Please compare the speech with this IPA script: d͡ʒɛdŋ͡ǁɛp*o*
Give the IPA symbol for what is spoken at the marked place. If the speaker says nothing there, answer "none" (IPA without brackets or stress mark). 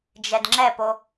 o